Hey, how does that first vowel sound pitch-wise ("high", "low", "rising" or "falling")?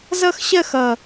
falling